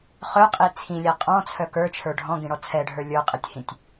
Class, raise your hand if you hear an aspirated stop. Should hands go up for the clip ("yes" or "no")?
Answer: yes